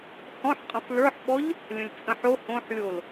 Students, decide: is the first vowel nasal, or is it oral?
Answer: nasal